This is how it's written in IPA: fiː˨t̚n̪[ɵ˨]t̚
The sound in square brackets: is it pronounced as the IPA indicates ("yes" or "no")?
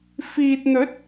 no